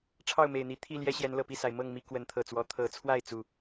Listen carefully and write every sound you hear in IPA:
ʈ͡ʂʰ ɑ˥˨ ʊ̯ m e˨˩ ɪ̯ n̪ i˨˦ t̪ʰ i˥˨ l j ɛ˦ ɕ j ɛ˨˦ n l ɤ˨˩ p i˥˨ s a˩ ɪ̯ m ɤ˥˨ ŋ m i˦ k w ə˨˦ n t̪ʰ ɤ˨˩ t͡s w ɔ˨˦ t̪ʰ ɤ˨˦ t͡sʰ w a˥˨ ɪ̯ t͡s u˨˩

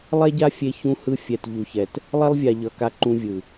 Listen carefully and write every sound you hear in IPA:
lˠ ɛ˦ ɟ a˦ fʲ e˦ ç ũ˦ h ɯ˦ fʲ ɛ˨ t ʎ u˨ ç ɛ˨ t | lˠ ɛ˦ lˠ vʲ a˨ ʎ ʌ˨ k a˦ ǃ ũ˦ vʲ ɯ˨

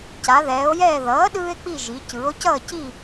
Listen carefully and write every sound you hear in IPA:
c a˩˧ ð ɛː˩˧ o̯ j ɛː˦˨ ð ʌː˩˥ ɗ ɯː˦ e̯ k͡p i˦˨ ʒ i˩˧ c ɯː˩˧ o̯ c ʌː˦˨ c i˦˨

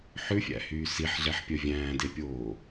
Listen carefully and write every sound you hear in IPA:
ħ ʉ fʲ æ̰ h yː s i ħ ɮ ɛ ħ pʲ œ vʲ æ̃ː d e pʲ oː

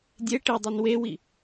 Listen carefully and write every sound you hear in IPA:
dʲ e ʈ i dˤ i n w e w i

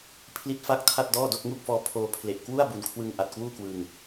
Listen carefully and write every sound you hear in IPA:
pʰ l i˦˥ t̚ f a˦˥ k̚ tʰ a˥˩ t̚ d ɔː˥˩ d o˥˩ k̚ ŋ u˥˩ k̚ f ɔː˧ pʰ oː˧ pʰ l e˨˩ ʔ k w u˥˩ a̯ b u˨˩ n kʰ w ɯ˧ ŋ ʔ a˨˩ t̚ k w uː˥˩ k w ɯ˧ ŋ

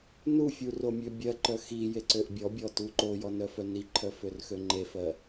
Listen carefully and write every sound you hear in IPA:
n u fʲ u r o mʲ ø bʲ ɜ ǃ œ x i j e ǀ ø ʔ bʲ ɔ bʲ ɔ t u ǃ o j ɔ n œ f œ n i ǃʰ œ f ø r x ø ŋ͡ǃ e f ɜ

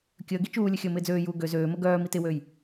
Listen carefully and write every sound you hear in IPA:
kʲ əː ɡ i t͡ʃ uː lʲ ə xʲ əː m ɪː d͡z øː j uː ɡ ø z øː m ə ɡ œː m i t ɪ w øː j

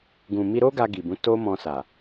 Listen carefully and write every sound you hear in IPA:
ɡ ũ˨ m i˧ ɾ o˦ ɡ a˧ ɡ i˨ b ũ˨˦ t o˦ m ɔ̃˧ s a˨

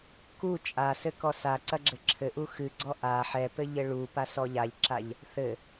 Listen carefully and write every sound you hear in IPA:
k u t͡ʃʼ a s ɘ k ɔ s a ǀ ɐ ɡ͡ǁ ɘ ǁʰ ɘ ʔ u x ɨ ɡ͡ǀ ɔ ʔ a ħ ɛ p ɘ ʎ ɘ ɭ u p a s ɔ ʎ a ʎ ǁ a ʎ | θ ɘ

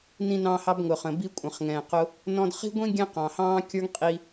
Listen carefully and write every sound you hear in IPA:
n ĩ˧ n ɑ̃˧ h ɑ˧ b ŋ ʊ˩ χ ə̃˩ b i˧ kʷʼ ə̃˩ χ ŋ ɛ̃˩ q ʊ˧ | n ɔ̃˧ d χ i̤˥ ɡʷ ĩ˥ ɡʲ ɛ̃˥ q ɑ̃˩ h ɑ̃ː˥ kʲ ə˞˥ ŋ qʼ i˥

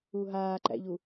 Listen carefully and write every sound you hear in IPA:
u ɦ aː ǃ æ̰ ʎ u

